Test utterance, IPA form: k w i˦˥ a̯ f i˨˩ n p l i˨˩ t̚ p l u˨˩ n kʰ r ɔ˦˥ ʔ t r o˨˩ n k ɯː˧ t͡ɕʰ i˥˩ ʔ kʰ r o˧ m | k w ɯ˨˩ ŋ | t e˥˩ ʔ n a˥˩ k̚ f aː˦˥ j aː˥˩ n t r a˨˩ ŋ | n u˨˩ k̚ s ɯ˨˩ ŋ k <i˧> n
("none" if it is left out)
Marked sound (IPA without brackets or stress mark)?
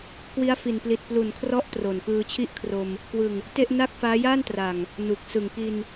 i˧